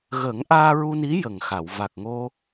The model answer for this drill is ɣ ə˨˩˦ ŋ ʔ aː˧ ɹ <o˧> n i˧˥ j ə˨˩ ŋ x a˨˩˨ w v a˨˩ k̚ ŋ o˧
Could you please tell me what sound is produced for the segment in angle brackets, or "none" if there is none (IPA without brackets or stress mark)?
u˧